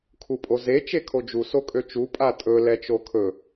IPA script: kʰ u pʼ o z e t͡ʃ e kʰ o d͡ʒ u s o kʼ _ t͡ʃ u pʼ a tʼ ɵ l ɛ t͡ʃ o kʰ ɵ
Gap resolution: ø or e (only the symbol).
ø